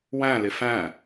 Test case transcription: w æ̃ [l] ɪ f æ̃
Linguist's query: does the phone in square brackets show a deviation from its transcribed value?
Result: no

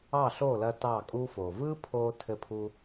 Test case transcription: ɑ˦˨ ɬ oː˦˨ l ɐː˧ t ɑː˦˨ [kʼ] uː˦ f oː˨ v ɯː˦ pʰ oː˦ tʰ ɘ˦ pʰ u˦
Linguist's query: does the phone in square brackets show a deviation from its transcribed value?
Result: no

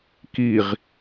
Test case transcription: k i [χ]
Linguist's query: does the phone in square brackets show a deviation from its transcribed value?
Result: yes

